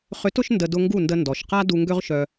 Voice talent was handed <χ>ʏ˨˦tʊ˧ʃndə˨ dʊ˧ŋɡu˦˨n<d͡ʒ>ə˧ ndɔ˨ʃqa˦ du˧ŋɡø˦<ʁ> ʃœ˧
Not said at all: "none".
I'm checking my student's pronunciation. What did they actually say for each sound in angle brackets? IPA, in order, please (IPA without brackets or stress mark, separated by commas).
χ, d, ʁ